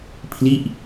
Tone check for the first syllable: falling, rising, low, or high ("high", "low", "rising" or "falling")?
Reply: falling